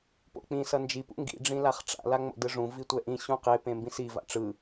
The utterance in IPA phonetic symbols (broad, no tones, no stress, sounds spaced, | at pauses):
p o̰ k͡p ĩ s ʌ n d͡ʒ i p ṵ ŋ ɡ ḭ ɖ͡ʐ ĩ l a χ ʈ͡ʂ a̰ l a ŋ͡m o̰ d ɯ ʐ ũ v i tʷ ɛ ʔ ĩ ɕ ũ q e p ẽ m b ĩ s i v a̰ ʈ͡ʂ ɯ